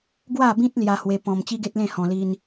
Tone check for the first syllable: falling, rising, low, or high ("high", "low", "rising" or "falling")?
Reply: falling